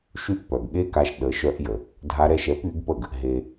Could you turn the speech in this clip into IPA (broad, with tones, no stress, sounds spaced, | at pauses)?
ʃ y˥˩ ʔ p œ˩ ɡ ɠ e˥ k a˧ ʃ ɗ ə˩˥ ʃ œ˧ ʔ j ə˩ | dʱ a˧ ɾ ɛ˧ ʃ ɛ˩˥ p y˩˥ ɡ p ə˥˩ ɡ | ɦ e˩